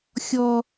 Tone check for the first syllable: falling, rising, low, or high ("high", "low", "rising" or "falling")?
high